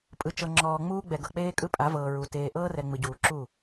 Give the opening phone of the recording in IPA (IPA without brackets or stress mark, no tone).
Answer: pʼ